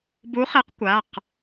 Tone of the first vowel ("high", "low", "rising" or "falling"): rising